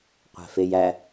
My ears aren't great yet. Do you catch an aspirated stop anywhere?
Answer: no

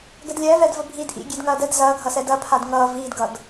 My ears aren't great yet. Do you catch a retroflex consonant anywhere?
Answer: no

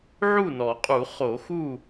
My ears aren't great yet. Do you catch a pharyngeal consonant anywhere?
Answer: yes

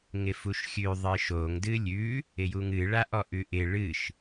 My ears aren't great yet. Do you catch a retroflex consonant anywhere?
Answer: yes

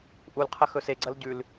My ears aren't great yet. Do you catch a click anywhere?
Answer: yes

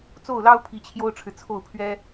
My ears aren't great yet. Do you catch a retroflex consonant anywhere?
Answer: yes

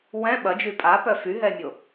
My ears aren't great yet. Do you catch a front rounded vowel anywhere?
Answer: yes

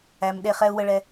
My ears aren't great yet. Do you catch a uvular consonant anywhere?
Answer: yes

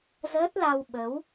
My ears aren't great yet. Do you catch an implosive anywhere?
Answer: yes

